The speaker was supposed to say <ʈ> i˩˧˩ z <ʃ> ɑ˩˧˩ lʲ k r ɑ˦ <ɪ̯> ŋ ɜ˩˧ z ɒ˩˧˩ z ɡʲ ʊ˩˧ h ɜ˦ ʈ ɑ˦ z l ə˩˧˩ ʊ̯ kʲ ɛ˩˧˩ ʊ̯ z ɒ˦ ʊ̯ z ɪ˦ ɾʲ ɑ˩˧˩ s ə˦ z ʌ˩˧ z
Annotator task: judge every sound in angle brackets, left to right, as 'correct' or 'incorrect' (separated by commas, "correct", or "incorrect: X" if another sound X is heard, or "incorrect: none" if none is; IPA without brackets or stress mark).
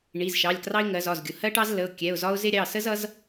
incorrect: ɳ, correct, correct